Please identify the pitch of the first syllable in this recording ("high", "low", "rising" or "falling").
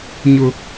high